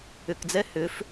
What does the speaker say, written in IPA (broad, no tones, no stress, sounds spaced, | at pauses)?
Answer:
ʏ k d͡z ɛ h ʏ f